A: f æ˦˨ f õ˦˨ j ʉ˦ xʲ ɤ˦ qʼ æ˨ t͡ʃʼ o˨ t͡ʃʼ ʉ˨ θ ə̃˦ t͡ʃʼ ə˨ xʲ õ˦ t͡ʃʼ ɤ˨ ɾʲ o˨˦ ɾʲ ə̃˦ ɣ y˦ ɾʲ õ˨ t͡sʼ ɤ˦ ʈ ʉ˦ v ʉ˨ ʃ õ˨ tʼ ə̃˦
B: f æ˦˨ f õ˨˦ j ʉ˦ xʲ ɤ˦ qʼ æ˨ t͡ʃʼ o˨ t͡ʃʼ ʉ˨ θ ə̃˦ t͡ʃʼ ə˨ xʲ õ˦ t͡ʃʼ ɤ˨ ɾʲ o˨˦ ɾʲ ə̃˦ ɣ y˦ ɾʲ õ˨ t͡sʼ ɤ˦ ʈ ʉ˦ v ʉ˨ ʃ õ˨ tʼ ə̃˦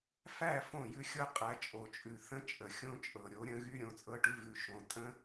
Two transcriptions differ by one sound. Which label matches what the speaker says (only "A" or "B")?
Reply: A